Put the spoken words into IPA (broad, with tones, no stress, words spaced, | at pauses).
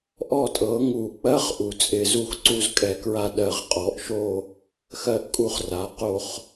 ʔɔ˥˨tʼɤ˩˥ŋu˧˩˧k͡pɜ˦˥χ ʔu˩˧t͡sʼɪ˧˩˧zu˦˥xǀu˥˨z kʼɛ˧˩˧kɹa˥˨ ɗɜ˧˩˧ʁqʼɔ˩˧ʔʃo˥˨ | xɜ˥˨ʔkʼu˥˨χra˩˧qo˥˨χ